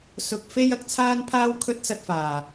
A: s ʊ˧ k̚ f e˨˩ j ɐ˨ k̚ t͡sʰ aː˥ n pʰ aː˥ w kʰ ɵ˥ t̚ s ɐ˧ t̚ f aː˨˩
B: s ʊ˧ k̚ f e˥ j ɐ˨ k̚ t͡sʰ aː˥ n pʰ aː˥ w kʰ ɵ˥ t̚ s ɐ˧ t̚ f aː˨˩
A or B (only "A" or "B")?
B